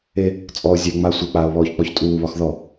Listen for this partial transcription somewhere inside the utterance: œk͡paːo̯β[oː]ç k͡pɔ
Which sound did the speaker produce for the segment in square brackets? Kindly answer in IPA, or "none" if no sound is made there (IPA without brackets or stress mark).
ɔː